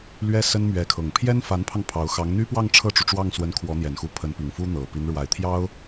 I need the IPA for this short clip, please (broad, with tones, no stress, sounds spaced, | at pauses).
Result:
l ɥ ɛ˥ s ə˥ n m ɥ ɛ˧˥ kʰ ɤ˨˩ ŋ pʰ j ɛ˥ n f a˧˥ n pʰ ɑ˧ ŋ pʰ ɑ˧˥ ʊ̯ x ɑ˧˥ ŋ n̪ y˥ p w ɑ˥˧ ŋ ʈ͡ʂʰ ɤ˥˩ ʈ͡ʂ u˩ ʈ͡ʂ w ɑ˥˩ ŋ s w ə˧˥ n kʰ w ɔ˧˥ n̪ j ɛ˨˩ n x u˧˥ pʰ ə˧˥ n p i˨˩ ŋ f u˥ n̪ ɤ˨˩ p i˧˥ n ɻ w a˨˩ ɪ̯ t̪ʰ j ɑ˥ ʊ̯